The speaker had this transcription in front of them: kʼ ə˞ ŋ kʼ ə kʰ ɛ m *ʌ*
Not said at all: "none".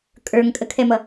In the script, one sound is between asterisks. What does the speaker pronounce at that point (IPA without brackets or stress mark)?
ʌ